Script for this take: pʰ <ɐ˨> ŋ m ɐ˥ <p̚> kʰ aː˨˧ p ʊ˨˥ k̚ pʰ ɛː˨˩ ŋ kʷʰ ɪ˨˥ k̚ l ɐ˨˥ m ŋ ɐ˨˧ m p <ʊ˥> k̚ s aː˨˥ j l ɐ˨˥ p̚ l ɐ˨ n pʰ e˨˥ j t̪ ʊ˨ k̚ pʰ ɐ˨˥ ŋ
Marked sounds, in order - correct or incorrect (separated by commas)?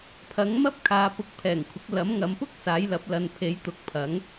incorrect, correct, correct